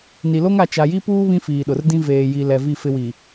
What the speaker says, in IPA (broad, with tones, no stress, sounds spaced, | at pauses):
n i˨ l o˦ ŋ a˨ t͡ʃ a˨ j i˦ p uː˦ β ĩ˦ f iː˨ ɗ ʊ˨ r d ĩ˦ v eː˨ j i˨ l ɛ˨ v i˦˨ f ɪ˦ w i˨